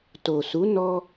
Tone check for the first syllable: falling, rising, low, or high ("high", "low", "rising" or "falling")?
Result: low